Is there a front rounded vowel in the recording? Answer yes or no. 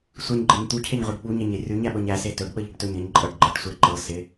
no